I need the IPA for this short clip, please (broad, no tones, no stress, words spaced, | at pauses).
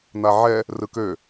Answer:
n̪aʕɛ | rɯkø